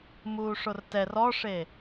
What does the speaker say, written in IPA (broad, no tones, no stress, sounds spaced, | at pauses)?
m uː ʂ o r t ɛ r ɔ ʂ e